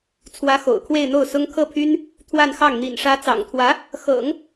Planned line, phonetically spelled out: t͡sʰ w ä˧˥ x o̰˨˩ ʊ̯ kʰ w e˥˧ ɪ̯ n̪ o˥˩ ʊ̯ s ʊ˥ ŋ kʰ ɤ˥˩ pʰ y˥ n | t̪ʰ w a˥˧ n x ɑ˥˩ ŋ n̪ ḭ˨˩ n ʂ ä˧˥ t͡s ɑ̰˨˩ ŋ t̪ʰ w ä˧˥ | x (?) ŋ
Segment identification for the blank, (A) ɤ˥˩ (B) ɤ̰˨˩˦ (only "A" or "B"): B